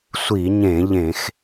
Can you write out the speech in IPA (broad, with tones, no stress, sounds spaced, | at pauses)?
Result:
sʷ i˧˩˧ ɲ ẽ˧˩˧ ʎ ẽ˧˩˧ x